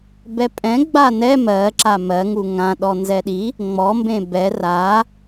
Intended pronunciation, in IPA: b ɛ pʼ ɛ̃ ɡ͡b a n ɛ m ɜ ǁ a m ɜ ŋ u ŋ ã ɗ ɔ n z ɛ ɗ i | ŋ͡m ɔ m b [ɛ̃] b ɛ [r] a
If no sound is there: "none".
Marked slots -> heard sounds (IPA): ẽ, r

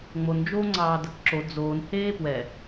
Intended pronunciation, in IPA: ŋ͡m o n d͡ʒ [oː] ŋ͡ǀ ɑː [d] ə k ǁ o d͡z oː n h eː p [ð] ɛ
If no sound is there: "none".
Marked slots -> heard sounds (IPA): oː, d, w

